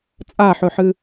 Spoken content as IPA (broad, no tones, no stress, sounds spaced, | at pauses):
t͡sʼ a ħ ɵ ħ ɨ